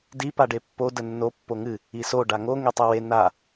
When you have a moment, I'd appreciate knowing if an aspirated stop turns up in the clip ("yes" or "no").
no